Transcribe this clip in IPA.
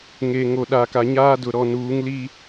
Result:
ŋ e˨ ŋ o˨ ɗ a˨ k a˨ ɲ aː˦ d ʊ˨ ɾ ɔ˨ n uː˨˦ ŋ l i˦

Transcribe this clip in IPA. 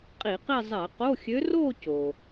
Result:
qʼ i˧˩˧ q i˥˧ zˤ ɛ˧˩˧ q o˧˥˧ xʲ ø˧˥ r o˥˧ c o˩

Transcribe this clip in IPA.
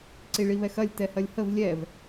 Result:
ǀ i ɭ i β ɛ x ɐ lʲ t ɛ h ɐ lʲ h ə v lʲ ɛ v

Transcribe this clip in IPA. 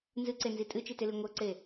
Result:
n z ɨ ǀ e n z i tʼ ɨ t͡ʃ i t e l i ŋʷ ɤ ǀ e

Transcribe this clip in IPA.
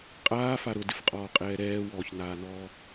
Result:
qʼ aː f a ɾ ʊ d ɪ f qʼ ɔː qʼ ɛː ɾ ɛː w ɔː ç n aː n ɔː

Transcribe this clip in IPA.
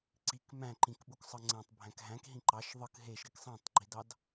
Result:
ǀ i k m æ̃ ǃ ĩ k ɓ u k sˤ ɯ ŋ͡ǀ æ̃ tˤ bʱ æ̃ k ɦ æ̃ k ɦ ĩ ǃ ɑ ʃ ðˤ ɯ k ɦ e ʃ ɾ i k sˤ æ̃ tˤ ɡ͡ǃ i d ɑ d

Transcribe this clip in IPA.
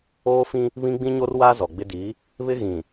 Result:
oː˦ f ĩ˦ | β ĩ˦ ɡ͡b ĩ˦ ɲ o˦ r w aː˦ z ɔ˨ ɡ͡b ɪ˦ d i˨˦ | β ɪ˦ ɣ ĩ˨

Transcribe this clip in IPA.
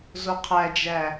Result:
z o qʰ æ d͡ʒ æ

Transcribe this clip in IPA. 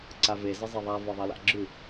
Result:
ǀ a v e z ə zˤ e ðˤ a v ɒ ðˤ ɐ l a̰ ɡ͡ǁ ʉ

